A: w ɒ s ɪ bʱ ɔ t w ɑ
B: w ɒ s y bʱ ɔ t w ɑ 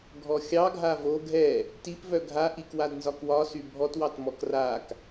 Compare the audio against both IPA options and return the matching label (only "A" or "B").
B